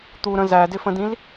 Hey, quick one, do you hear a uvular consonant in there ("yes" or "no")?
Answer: no